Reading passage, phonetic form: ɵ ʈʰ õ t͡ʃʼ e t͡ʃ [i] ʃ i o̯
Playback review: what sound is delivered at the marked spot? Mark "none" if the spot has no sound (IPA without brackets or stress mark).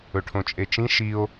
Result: ĩ